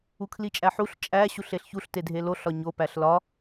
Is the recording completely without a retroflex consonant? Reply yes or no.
yes